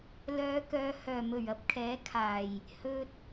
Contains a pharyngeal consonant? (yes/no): no